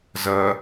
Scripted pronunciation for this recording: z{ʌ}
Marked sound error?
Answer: no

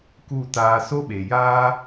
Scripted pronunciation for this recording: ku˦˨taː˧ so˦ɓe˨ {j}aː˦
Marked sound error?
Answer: no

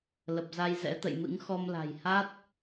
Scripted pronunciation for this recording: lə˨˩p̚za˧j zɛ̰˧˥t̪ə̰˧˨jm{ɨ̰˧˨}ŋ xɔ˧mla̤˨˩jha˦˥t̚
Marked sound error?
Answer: yes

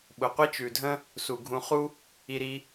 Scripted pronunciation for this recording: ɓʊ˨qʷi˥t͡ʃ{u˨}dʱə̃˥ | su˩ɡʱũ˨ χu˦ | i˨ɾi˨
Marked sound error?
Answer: yes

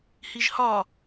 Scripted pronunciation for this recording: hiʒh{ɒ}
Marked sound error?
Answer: no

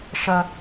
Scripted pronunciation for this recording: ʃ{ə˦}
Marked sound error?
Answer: no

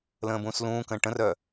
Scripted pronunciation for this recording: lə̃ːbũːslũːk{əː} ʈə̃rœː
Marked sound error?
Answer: yes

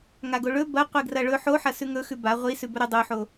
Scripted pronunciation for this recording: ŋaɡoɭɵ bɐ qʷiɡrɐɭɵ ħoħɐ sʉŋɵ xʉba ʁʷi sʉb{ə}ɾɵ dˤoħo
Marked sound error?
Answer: yes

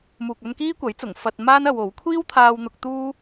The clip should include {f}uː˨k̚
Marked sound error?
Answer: yes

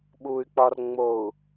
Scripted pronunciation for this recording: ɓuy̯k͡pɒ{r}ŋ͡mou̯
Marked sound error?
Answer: no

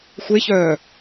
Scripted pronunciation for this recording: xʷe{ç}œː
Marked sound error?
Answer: no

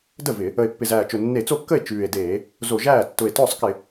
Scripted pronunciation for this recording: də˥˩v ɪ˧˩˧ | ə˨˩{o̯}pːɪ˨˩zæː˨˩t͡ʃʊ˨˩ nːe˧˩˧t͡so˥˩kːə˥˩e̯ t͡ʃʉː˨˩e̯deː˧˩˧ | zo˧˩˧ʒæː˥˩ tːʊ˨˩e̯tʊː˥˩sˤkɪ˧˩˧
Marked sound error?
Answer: yes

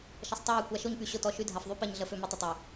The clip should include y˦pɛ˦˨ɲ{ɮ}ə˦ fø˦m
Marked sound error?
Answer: no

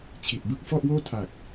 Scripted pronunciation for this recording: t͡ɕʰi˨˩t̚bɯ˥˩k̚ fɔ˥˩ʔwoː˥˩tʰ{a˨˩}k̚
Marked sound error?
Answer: no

